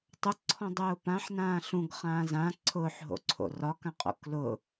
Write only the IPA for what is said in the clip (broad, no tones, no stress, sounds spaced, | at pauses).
tˤ ʊ ǀʰ ɔ̃ dˤ ʊː p ã ħ n ãː ɬ ũ ɡ χ ãː z ã ǀʰ ʊː ħ ɦ o̰ ǀʰ o̰ r ɒ k ã qʼ o̰ k l ʊ